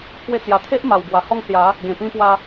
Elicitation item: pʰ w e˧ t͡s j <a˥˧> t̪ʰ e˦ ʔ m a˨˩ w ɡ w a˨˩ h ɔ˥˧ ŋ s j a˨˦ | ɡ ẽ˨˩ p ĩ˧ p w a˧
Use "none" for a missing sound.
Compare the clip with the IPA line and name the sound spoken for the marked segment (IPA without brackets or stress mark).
a˨˩